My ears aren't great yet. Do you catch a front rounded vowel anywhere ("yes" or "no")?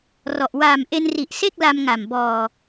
no